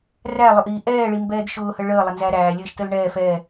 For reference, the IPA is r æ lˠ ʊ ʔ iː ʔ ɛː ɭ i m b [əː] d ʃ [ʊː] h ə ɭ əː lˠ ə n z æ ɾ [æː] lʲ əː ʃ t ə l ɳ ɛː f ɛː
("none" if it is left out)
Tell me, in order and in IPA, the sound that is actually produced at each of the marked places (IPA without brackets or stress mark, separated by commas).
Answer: ɛː, ʊː, æː